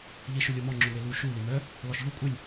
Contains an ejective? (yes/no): yes